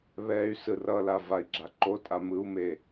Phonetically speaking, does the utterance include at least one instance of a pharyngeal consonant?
no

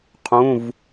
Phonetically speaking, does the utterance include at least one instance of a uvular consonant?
yes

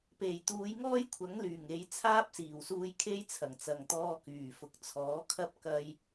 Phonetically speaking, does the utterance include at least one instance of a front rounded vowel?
yes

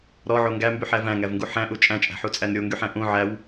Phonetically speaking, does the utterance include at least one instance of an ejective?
yes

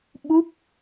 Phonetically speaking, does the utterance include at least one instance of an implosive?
yes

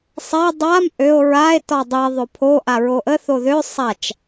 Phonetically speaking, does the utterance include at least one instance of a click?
no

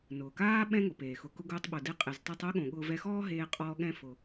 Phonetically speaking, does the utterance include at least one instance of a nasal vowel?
yes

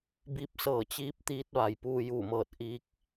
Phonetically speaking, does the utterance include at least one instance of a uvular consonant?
no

